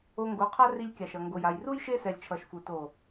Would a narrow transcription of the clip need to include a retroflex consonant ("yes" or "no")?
no